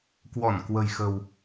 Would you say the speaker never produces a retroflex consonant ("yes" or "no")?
yes